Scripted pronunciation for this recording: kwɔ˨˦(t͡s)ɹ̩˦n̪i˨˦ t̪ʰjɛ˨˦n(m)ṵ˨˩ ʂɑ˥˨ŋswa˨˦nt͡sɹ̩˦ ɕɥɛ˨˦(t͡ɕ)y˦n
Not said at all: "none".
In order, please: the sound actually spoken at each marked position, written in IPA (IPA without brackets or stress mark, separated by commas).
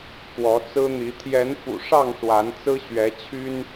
t͡s, f, t͡ɕʰ